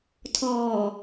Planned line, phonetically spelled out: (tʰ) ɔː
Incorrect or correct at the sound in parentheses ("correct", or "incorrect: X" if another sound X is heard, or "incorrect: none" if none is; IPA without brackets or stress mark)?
correct